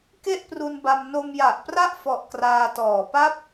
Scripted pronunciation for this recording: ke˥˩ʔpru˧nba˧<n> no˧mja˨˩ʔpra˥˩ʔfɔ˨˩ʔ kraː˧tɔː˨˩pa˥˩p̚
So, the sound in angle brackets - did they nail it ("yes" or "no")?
no